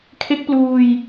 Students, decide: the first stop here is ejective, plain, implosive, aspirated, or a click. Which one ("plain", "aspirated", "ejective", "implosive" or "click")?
aspirated